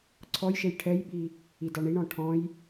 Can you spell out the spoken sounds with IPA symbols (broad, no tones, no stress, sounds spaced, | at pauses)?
ǀʰ ɔ j ʃ e j ʈʰ ɛ j ɓ i | i d ɑ ɳ i ɳ ɔ̃ ʈʰ ɔ̃ j